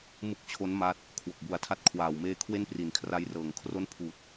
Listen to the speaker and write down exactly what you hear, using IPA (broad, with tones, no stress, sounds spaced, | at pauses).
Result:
m ɯ˦˥ k̚ t͡ɕʰ o˦˥ n m aː˦˥ t̚ | kʰ w o˨˩ k̚ b u˨˩ a̯ tʰ a˦˥ t̚ kʰ w aː˨˩ w m eː˧ kʰ w e˥˩ n p r i˨˩ n kʰ r a˦˥ j r ɤː˨˩ ŋ kʰ r o˦˥ n pʰ uː˨˩ t̚